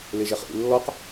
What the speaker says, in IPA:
l e ʒ ɛ χ ʔ ḭ lː ɔ q

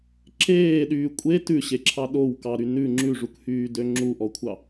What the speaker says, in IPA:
ǁ eː ɗ yː kʷʼ e t ʉ ɕ e ǁʰ ɑ ɗ o w k ɑ ɾ y n ʉ ŋ͡ǁ ʉ ʐ u k h yː d ø ŋ͡ǁ u ʔ ɔ kʷʰ ɑ

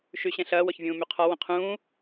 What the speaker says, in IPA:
ʃ y ɕ ɛ̃ ɬ ɐː w ɔ ç vʲ ũː m y qʰ ɔ w ə̃ qʰ ũː

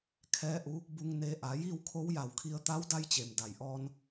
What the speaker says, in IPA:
kʰ ɛː˧˥ ʔ u˧˥ | b u˧ ŋ n e˧ ʔ a˩˧ j iː˥˨ w kʰ o˧˥ w j a˧˩ w kʰ i˧ ə̯ t̪ a˧˥ w d a˧ j t͡ɕ e˩ m d a˩ j ʔ ɔː˧ n

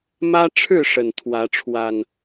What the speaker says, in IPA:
m ä˦ ʈ͡ʂʰ ɻ̩˥˨ ʂ ə˨˩ n t̪ʰ w ä˨˦ ʈ͡ʂʰ w a˨˩ n

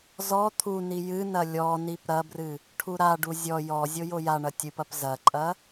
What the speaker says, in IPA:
z ɔ t̪ʰ u n i j ɨ n ɐ lʲ ɔ n i p ɾ ɐ b r ɨ | ʈʰ u ɾ a ɖ u zʲ ɔ j ɔ zʲ o j o j a ɳ ɐ tʲ ɨ p ɐ p z ɐ ǃʼ ɐ

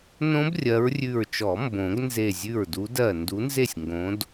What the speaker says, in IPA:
n õ˦˥ b rʲ ɜ˨˦ ɹ rʲ ʉ˧˩ ɹ t͡ʃ ɔ˨˩˦ m b õ˨˩˦ ɡ n z e˧˩ zʲ ʉ˧˩ ɹ d u˨˦ d ɜ˧˩ n d u˨˦ n z e˥˩ sʲ ŋ ɡ õ˨˦ d

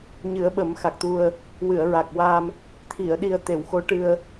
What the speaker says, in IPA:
ɲ ɨ˨˩˦ ə̯ ɓ ə˨˩˦ m x a˨˩ k̚ t̪ u˧ ə̯ | w ɨ˨˩˨ ə̯ ɹ a˨˩ k̚ w a˧ m | t̪ʰ i˨˩˨ ə̯ ɗ i˨˩ ə̯ t̪ e˨˩˨ w x o˧˥ ʈ ɨ˧ ə̯

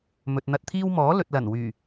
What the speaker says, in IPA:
m ɵ˨ t̚ n̪ ɐ˧ t̚ t̪ʰ iː˥ w m ɔː˨˥ l ɵ˨ t̚ l ɐ˨˩ n w yː˨˩

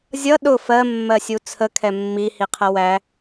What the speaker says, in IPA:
zʲ ʌ ɗ ʊ f ɜ mː ɜ sʲ u t͡sʰ ə kʰ ɛ mː i h i qʰ ʌ w æ

